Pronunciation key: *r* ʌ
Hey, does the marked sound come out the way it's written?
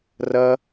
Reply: yes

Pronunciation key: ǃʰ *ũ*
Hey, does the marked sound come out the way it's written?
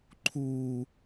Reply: no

